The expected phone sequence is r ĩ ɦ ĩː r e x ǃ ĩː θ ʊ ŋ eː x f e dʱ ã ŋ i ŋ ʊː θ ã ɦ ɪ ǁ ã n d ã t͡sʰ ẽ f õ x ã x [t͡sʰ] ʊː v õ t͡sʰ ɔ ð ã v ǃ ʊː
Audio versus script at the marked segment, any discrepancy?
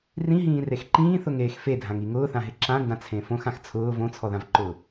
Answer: no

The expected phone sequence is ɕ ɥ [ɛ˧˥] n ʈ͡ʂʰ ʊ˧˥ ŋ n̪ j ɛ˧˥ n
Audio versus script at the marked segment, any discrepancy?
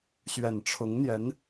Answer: yes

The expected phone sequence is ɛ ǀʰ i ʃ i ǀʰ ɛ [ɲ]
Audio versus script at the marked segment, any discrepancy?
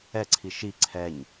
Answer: no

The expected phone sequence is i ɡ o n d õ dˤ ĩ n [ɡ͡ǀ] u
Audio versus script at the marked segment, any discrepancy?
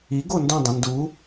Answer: yes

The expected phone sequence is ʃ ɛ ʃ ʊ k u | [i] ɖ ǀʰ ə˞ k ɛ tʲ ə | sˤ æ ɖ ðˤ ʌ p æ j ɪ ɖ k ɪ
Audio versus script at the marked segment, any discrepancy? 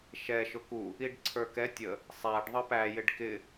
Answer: no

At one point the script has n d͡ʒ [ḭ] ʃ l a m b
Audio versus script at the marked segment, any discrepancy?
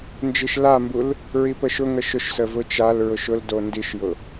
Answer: yes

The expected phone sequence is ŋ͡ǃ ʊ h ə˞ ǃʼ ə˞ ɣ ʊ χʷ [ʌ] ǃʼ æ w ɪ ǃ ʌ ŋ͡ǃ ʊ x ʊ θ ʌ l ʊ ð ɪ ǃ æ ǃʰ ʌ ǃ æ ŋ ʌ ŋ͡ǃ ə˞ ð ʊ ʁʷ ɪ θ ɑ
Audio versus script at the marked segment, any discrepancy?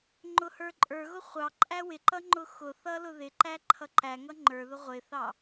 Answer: yes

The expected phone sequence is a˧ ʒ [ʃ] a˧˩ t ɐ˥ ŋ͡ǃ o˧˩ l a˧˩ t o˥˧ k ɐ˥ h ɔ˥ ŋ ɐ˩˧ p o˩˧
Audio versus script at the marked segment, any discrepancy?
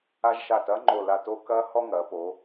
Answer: no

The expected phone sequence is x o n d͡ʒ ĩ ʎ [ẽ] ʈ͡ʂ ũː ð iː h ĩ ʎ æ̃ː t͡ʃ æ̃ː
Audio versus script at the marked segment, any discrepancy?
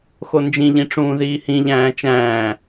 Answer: yes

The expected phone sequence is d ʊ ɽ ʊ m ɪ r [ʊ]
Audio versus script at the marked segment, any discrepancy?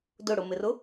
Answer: no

